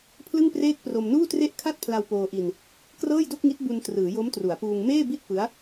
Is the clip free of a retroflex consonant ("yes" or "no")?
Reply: yes